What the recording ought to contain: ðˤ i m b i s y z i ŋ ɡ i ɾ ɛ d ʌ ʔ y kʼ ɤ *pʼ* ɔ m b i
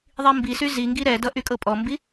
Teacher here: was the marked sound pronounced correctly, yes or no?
yes